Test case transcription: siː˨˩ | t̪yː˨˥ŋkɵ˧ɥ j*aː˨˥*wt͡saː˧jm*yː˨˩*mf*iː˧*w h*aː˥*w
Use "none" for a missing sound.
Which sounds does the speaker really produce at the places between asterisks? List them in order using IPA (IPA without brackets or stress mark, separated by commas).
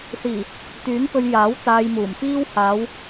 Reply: aː˨˥, uː˨˩, iː˥, aː˨˧